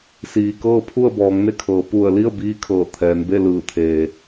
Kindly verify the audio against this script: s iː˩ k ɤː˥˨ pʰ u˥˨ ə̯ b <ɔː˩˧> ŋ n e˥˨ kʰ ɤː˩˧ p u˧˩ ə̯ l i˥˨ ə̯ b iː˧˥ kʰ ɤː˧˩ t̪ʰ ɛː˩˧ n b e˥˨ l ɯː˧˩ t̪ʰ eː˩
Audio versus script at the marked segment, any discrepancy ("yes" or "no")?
no